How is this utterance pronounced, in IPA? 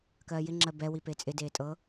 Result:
kɜːjɪ ŋ͡ǁɜbɛ wipet͡sʼɪ deːtʼɤ

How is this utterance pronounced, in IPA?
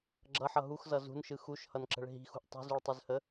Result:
ɡ͡ǁʌħʌ ɦuxzʌ zṳnʃɯ xuʃhʌnǁə̤ɭ ɦi̤xṳʔ tˤi̤zuɭtˤɯzhə

